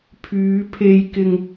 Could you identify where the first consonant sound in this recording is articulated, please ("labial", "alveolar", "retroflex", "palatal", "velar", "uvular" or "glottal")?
labial